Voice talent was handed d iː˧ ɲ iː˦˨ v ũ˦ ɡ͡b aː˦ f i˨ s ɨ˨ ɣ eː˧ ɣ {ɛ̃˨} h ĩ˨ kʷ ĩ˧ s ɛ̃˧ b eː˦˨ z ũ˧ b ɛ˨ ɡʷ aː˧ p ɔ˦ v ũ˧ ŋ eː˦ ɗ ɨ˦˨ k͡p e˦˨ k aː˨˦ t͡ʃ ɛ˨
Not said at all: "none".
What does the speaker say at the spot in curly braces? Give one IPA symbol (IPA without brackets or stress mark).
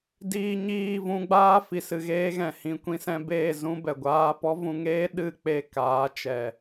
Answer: ɛ̃˨